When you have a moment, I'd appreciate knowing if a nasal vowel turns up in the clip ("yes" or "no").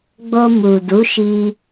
no